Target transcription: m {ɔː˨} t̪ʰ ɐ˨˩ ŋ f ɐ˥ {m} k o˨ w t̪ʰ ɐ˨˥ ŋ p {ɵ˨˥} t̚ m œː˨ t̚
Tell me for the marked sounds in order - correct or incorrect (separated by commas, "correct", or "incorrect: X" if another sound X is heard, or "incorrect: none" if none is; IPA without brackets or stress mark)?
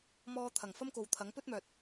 incorrect: ɔː˧, correct, incorrect: ɵ˥